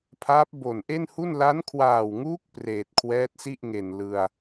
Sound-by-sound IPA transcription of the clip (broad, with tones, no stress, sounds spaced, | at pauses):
pʰ aː˦˥ p̚ b o˨˩ n ʔ e˥˩ n h u˥˩ n l a˦˥ n kʰ w aː˨˩ w ŋ uː˦˥ k̚ p r eː˨˩ t̚ kʰ w ɛː˦˥ t̚ s i˥˩ ʔ ŋ e˨˩ n l ɯ˧ a̯